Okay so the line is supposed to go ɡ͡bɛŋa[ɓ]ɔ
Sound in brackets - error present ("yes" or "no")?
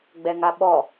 no